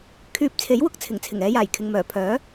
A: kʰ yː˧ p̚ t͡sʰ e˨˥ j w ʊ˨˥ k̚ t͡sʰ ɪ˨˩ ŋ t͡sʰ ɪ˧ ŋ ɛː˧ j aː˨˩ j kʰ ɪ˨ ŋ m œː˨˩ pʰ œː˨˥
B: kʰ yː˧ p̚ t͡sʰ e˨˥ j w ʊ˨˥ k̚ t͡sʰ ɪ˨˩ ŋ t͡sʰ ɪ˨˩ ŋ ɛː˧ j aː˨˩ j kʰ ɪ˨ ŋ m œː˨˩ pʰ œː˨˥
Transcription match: B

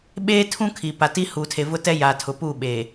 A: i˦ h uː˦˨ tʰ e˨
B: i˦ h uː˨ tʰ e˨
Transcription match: B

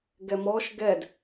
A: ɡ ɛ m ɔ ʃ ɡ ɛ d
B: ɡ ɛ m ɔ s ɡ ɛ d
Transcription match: A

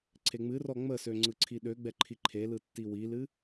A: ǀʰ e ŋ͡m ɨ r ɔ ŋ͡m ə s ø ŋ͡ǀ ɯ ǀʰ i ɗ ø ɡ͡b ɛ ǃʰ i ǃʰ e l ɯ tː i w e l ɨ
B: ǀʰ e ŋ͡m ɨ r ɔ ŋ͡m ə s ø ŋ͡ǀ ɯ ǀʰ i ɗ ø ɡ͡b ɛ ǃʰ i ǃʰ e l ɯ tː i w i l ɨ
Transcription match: B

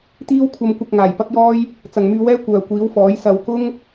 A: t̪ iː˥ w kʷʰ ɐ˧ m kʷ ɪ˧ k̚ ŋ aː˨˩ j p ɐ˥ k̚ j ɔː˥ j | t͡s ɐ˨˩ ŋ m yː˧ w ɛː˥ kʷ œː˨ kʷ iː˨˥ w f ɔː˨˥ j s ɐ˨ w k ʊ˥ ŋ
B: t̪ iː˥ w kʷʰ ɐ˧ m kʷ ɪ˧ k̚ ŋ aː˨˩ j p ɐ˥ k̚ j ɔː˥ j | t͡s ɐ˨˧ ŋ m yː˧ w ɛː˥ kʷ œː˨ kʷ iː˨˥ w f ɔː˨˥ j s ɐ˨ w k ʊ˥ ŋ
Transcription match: A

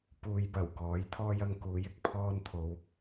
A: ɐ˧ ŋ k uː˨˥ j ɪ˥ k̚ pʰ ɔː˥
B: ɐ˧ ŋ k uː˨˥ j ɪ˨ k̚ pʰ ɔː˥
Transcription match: A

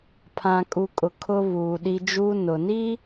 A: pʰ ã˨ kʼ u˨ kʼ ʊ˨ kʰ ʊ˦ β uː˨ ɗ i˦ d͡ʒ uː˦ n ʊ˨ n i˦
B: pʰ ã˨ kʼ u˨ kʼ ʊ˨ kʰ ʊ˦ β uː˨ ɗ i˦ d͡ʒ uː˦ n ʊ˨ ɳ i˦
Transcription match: A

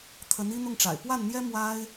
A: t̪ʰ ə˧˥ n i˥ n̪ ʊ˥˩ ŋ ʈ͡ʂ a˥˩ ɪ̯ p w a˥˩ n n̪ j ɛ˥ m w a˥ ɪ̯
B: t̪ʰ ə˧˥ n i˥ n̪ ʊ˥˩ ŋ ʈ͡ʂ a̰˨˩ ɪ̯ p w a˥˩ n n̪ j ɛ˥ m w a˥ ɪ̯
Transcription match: B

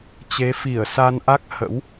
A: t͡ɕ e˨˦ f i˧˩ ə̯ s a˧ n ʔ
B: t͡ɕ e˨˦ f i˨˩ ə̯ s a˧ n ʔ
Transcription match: A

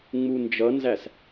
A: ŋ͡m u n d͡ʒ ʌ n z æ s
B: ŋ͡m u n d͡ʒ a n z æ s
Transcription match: A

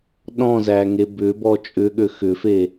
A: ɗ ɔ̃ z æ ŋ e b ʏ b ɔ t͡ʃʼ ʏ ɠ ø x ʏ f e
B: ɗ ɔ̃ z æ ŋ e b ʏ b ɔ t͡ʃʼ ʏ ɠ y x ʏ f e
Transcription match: A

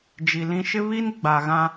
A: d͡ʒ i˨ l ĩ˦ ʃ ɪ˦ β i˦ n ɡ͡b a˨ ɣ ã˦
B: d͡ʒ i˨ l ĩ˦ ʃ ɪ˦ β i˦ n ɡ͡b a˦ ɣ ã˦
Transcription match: A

